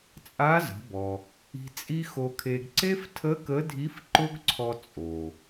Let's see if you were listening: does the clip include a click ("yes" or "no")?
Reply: yes